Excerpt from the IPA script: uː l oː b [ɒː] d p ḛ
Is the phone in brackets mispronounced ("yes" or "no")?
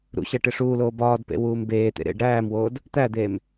no